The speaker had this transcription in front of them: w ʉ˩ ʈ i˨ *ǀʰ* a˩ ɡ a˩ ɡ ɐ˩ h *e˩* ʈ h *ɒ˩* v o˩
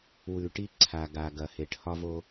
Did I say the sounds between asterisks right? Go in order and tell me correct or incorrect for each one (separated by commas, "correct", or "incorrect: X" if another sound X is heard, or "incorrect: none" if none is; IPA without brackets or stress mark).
correct, correct, correct